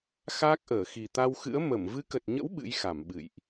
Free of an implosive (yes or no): no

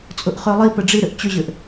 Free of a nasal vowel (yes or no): yes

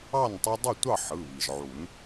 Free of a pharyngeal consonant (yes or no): no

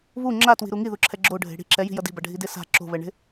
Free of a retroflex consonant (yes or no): no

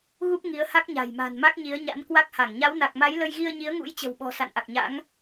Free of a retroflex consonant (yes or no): yes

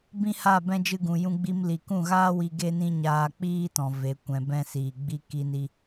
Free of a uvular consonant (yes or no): yes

